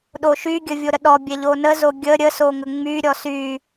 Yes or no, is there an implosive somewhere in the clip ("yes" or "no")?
yes